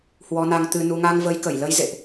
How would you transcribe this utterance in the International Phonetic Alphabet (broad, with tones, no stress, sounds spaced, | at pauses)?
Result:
h w ɔ˨˦ n a˧ ŋ t̪ ɨ˧ n u˧ ŋ a˧ ŋ v ə˨˦ j k ə˧˩ j l ə˨˦ j z ḛ˧˨ ʔ